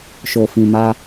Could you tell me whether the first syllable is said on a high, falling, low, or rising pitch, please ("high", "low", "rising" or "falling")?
low